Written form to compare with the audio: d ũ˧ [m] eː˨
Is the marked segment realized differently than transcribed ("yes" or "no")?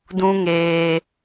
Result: yes